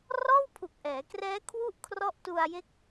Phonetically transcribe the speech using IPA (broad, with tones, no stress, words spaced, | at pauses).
rɔː˥˩wpʰu˨˩k̚ʔɛː˩˦krɛː˦˥ kʰwu˥˩ʔ kʰrɔ˦˥ʔtu˧a̯je˦˥k̚